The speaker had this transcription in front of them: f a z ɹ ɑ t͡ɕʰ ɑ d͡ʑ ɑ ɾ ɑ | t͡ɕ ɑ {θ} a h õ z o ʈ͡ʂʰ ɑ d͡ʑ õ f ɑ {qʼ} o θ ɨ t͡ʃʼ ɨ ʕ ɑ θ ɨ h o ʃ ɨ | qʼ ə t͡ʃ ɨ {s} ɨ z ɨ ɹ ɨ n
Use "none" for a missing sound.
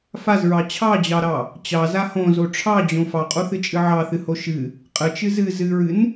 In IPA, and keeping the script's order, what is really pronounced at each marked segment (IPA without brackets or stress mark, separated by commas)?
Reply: z, qʼ, z